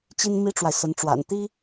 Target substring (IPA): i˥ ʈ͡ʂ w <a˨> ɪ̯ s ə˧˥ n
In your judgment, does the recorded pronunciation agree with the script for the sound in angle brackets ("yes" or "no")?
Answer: yes